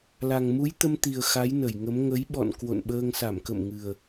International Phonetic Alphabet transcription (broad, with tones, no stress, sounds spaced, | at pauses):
l a˨˩ ŋ m u˨˦ j t̪ ə˧ m t̪ i˨˩ ə̯ x a˨˦ j n ə˧˩ j ŋ ə˨˦ m ŋ ə˨˦ j ɓ ɔ̰˧˨ n k w o̰˧˨ n ɓ əː˧ ŋ s a˧˩ m k ə̰˧˨ m ŋ ɨ˨˩ ə̯